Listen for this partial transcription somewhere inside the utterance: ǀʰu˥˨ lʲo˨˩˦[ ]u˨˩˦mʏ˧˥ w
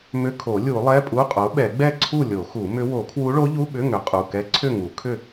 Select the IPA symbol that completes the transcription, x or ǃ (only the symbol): x